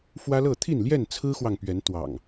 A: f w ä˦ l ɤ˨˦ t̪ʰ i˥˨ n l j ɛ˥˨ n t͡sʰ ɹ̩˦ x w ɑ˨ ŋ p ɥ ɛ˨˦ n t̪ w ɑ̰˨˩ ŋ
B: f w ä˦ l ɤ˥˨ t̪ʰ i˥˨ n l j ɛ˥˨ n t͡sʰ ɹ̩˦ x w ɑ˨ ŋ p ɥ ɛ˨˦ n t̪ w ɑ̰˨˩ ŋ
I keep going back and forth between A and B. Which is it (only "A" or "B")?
B